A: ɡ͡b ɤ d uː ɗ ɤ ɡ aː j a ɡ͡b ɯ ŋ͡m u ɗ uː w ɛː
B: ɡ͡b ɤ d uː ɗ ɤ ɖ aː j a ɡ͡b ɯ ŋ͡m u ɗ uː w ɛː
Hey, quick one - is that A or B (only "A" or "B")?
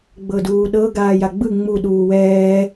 A